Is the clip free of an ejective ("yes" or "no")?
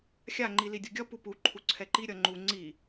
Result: yes